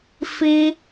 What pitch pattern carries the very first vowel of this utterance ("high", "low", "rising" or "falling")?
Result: high